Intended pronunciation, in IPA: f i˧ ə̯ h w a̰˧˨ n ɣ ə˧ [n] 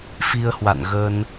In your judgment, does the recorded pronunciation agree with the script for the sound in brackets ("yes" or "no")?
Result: yes